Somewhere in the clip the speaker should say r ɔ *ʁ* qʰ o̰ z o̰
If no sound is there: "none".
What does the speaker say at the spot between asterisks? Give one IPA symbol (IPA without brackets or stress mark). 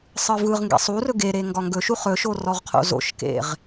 ʁ